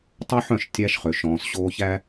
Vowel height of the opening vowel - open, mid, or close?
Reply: mid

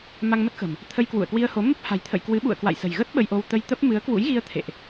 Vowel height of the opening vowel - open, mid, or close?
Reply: open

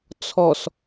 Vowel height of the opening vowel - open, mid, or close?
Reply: mid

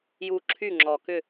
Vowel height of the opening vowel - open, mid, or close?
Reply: close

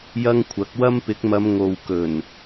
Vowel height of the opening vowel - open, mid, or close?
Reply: open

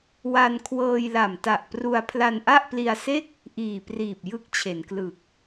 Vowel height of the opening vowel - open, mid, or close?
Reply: open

